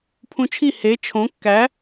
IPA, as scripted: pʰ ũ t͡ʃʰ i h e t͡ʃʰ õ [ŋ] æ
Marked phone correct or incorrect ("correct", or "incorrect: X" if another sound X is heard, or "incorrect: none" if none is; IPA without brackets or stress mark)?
incorrect: kː